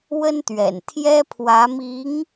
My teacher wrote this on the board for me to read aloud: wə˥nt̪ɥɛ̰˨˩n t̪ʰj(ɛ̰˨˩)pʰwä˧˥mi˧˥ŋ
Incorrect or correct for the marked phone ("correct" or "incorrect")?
incorrect